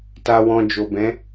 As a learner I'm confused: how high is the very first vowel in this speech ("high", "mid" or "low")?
low